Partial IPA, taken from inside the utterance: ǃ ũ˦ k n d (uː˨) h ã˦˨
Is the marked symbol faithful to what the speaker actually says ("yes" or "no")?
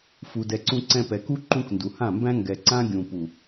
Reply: no